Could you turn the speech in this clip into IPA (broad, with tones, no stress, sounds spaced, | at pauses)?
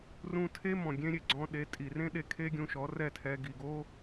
r ũ˧ tʰ e˥ m ɔ̃˩ ɡʲ ẽ˥ ɾʲ e˥˩ ɡ͡ǀ ɔ̃˧ ɗ e˩˥ tʼ i˩ r ẽ˥ ɗ e˧ kʰ e˥ ɡʲ ũ˧ ʃ ɔ˩˥ r ɛ˥˩ tʰ ɛ˧ ɡ i˩ ɡ o˥